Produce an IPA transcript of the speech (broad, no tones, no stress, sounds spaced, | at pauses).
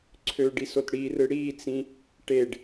ǀʰ ø ɖ i s o t ɽ i r ɯ ɽ i t͡s ĩ | ʈ e ɖ